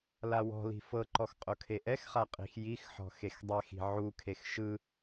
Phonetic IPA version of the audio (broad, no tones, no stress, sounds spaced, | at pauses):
l a w ɔ̤ l i̤ f ɤ ǃ ɔ x qʼ o kʰ e ʔ ɛ x χ a qʼ i̤ x j i x ħ ɔ̤ x e x dˤ ɛ x i̤ ʕ u kʰ e x ʃ ɯ